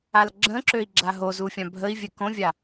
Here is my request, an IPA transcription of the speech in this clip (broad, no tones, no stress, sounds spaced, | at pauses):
a l ɡ͡ǁ ə̃ ǁ ø i̯ ɡ͡ǁ a ɦ o z u fʲ ã bʱ ə i̯ vʲ ɛ k õ vʲ a